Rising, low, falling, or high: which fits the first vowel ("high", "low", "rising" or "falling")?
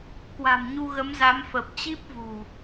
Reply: low